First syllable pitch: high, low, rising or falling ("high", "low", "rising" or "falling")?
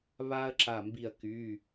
high